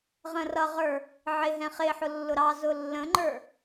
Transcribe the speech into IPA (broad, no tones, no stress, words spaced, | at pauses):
ʁə̃rʌʁə˞ | ʕɪɦɛ̃ χɪħʊ lːʊɾɑzʊ lːə̃ŋ͡ǃə˞